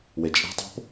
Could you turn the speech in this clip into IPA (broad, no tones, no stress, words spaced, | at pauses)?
wet͡ʃʼæ̤tˤo̤p